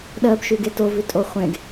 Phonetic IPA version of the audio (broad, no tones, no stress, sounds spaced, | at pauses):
ɗ ɜ b ʃ ʉ ɡ e t o v ʉ tʼ o χʷ ẽ ɡ